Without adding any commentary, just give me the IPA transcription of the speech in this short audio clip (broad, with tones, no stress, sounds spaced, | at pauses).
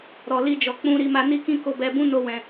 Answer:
ɾ ɔ˨ l i˧ d͡ʒ ɔ˨ k͡p ũ˧ ɾ i˧ m a˧ n i˦ k ĩ˦ k o˧ b ɛ˧ b ũ˦ n o˦ w ɛ̃˧